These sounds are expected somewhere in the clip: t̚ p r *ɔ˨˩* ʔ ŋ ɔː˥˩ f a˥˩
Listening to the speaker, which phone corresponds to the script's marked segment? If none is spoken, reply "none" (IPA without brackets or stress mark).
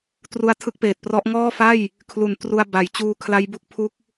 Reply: ɔ˦˥